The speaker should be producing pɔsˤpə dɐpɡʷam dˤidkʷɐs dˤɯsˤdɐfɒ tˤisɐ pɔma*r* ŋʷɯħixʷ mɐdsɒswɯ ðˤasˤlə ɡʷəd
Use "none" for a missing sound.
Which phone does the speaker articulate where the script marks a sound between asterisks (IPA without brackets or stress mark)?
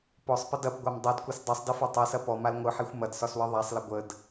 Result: l